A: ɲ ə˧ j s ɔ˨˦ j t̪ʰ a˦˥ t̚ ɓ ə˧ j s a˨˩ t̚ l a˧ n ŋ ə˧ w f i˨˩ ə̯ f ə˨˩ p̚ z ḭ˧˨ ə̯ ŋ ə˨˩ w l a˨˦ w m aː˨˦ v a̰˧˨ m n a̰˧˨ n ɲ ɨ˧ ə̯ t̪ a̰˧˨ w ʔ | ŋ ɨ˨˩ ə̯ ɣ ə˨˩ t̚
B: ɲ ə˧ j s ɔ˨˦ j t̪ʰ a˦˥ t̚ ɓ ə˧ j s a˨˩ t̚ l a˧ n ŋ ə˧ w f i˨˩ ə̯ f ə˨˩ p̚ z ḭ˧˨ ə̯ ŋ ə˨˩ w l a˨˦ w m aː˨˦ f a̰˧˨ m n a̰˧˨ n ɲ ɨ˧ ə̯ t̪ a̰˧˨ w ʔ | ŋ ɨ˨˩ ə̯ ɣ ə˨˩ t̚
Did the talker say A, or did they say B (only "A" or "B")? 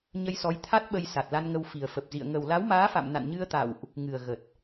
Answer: B